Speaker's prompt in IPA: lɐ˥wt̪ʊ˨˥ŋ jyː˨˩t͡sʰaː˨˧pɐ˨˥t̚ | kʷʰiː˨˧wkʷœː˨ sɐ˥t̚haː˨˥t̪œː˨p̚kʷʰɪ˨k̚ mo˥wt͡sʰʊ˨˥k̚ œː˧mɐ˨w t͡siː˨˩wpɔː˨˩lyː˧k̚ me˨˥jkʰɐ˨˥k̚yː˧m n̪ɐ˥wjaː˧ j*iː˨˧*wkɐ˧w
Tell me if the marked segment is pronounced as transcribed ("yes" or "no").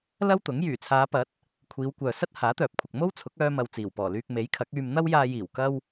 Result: no